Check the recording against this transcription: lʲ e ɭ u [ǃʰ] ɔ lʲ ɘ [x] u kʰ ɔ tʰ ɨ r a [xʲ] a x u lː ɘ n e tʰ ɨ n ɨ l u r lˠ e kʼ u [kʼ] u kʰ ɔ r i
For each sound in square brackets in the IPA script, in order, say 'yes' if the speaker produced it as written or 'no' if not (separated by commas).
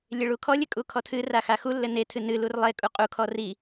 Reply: no, no, no, no